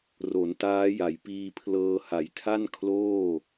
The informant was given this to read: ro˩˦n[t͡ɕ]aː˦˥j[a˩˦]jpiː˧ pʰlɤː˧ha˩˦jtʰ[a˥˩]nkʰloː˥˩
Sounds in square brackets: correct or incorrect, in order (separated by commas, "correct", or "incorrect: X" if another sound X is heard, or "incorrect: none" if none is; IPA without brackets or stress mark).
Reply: incorrect: t, correct, correct